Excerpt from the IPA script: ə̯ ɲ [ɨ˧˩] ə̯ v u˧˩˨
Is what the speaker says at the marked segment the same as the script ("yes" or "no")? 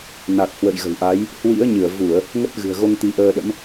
yes